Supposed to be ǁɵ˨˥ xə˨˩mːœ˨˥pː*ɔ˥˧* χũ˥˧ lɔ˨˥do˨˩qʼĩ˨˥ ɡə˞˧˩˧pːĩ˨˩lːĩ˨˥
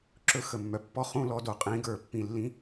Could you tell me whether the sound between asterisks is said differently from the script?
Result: no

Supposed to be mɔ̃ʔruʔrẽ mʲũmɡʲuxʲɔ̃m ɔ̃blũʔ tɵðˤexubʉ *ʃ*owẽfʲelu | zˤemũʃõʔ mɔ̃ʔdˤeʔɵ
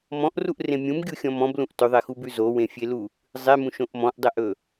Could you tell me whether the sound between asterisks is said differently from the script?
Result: yes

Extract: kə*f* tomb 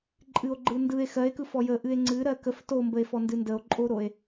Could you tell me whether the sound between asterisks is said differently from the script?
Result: no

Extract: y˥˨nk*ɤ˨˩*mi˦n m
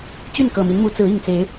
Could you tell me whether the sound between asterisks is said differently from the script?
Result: no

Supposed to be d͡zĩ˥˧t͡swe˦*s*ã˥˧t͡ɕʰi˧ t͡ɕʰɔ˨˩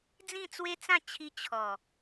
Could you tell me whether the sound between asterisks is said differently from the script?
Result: yes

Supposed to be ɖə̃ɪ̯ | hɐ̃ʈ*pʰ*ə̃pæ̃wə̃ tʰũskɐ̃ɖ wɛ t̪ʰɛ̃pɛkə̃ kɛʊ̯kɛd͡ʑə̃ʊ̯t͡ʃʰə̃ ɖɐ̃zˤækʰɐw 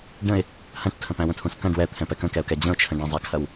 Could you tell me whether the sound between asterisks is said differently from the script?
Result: yes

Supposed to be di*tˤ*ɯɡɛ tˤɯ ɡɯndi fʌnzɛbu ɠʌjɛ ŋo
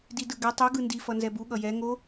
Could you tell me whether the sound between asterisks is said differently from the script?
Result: yes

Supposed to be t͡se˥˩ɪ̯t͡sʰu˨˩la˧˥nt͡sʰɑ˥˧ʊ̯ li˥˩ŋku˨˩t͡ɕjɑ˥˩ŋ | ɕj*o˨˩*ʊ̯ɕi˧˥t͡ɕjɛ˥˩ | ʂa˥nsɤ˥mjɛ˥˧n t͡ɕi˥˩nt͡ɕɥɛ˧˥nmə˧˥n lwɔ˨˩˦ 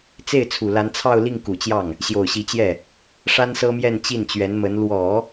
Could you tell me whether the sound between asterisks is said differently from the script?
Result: no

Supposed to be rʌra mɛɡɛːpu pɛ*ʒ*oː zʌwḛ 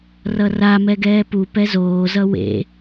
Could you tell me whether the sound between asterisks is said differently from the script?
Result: yes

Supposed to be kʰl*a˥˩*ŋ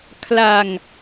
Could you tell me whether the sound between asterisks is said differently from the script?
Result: yes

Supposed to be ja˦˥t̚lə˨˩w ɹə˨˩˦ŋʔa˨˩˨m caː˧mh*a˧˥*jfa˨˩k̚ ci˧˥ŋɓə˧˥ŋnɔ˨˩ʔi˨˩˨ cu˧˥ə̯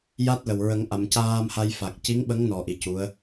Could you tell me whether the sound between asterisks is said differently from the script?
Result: yes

